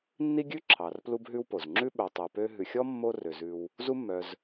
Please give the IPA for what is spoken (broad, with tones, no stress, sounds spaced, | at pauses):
nː i˥ ɡʲ ʉ˥ ǁʰ ɑ˨ r p l u˦ b ɦ ʉ˦ w p o˩ z ŋ͡ǁ ʉ˥ ɓ œ˨ tˤ y˨ p ø˦ ɦ ʉ˨ xʲ ɔ˥ mː o˥ r ø˨ z ʉ˦ w | z u˦ mː œ˨ z